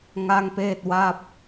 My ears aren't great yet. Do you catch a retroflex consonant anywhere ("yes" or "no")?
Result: no